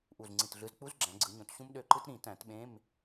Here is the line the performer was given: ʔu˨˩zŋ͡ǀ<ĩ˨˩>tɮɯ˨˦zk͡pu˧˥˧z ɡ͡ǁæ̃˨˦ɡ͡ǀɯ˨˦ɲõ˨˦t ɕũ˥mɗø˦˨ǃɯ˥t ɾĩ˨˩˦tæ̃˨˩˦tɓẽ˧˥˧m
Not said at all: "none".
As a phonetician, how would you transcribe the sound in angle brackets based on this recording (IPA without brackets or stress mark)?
ĩ˨˩